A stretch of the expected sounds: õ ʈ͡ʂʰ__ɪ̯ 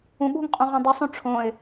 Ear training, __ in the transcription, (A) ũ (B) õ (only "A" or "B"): B